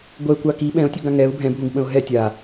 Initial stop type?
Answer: plain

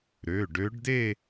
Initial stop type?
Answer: plain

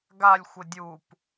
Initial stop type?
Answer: plain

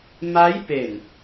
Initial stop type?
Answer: plain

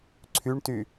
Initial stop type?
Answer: click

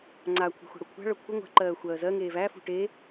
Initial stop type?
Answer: click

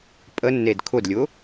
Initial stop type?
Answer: ejective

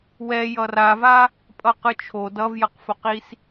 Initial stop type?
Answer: ejective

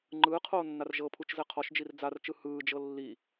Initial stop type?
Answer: click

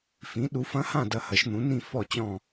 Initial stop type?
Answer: implosive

